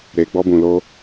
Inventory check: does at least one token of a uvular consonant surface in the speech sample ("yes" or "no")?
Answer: no